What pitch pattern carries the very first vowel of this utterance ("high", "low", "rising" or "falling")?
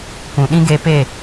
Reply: low